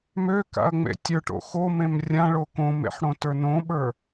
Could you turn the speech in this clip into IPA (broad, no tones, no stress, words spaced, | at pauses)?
møka̰ɐ̯ŋ͡mḛ tʲə˞ʈo̰ xomẽm rʲãɭo kõmḛħɽõtə˞ nõɓə˞